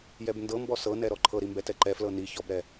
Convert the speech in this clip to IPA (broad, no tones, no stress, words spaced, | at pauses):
jɛbndɤmbɔ sɤnɛ ɾɔǃʰɤɾi mbɛtɛǃɛflɤ ni çɔbɾɛ